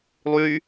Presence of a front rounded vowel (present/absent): present